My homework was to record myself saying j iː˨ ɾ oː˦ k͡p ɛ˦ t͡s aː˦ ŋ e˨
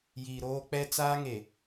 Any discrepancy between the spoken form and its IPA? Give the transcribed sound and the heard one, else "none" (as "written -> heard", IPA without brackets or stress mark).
none